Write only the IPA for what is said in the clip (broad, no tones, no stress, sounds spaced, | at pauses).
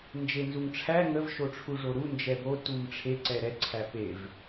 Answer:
n d͡ʒ e n z u ŋ ʈ͡ʂʰ æ ŋ ə v ʃ o ʈ͡ʂʰ u ʐ o ɾ u n d͡ʒ ɛ b o t u m ʈ͡ʂʰ e ǀ ɛ ɾ ɛ ǀʰ æ p e v